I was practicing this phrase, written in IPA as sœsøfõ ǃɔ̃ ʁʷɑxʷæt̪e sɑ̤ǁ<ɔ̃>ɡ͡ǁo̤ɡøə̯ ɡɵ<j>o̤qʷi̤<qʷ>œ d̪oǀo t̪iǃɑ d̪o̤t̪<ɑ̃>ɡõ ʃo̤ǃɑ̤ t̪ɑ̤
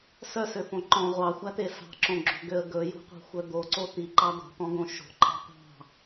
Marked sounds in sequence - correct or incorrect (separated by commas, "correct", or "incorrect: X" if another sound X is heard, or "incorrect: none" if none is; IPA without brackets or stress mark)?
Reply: incorrect: õ, correct, incorrect: xʷ, incorrect: ɔ̃